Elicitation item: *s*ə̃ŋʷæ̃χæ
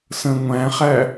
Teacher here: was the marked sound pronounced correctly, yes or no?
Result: yes